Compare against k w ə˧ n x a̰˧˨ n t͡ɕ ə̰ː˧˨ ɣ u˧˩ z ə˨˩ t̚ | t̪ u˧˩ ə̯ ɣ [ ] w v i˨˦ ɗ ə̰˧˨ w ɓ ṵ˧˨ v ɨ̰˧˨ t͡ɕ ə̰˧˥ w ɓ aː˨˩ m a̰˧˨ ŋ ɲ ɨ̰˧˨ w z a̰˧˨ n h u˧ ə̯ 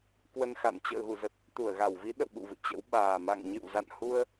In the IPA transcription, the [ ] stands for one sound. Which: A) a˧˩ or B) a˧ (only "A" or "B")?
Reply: A